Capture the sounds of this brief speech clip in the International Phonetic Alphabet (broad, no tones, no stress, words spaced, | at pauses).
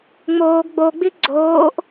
ŋ͡moːɡ ɡ͡boɡ͡bi ɡ͡ǀoːʔ